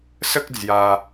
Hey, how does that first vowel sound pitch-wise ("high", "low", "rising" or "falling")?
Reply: high